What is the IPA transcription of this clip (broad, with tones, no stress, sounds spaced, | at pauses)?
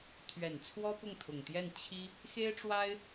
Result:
t̪ʰ ɥ ɛ˨˩ n t͡sʰ w ɔ˥ p ʊ˥˩ ŋ t̪ʰ ʊ˨˩ ŋ t̪ j ɛ˥˩ n t͡ɕʰ i˥ | x e˥ ɪ̯ ʈ͡ʂ w a˥ ɪ̯